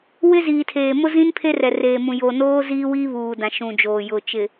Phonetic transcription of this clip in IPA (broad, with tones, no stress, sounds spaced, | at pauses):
w ɪ˦ z iː˨ tʰ eː˨ m ʊ˦ z ĩ˦ n pʰ e˦ r ɛ˨ r eː˨ m ũ˨ j o˨ n oː˦ z iː˦ w iː˦ β uː˨ d ã˨ ʃ ũ˨ d͡ʒ oː˨ j ʊ˨ t͡ʃ ɪ˨